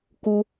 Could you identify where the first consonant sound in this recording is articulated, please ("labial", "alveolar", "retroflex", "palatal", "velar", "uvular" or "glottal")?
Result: velar